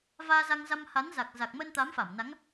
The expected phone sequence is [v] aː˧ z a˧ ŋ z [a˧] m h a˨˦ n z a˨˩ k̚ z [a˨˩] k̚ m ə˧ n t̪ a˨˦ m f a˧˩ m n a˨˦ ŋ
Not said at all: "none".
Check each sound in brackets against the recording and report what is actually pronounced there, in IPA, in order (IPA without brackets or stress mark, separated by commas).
v, a˧, a˨˩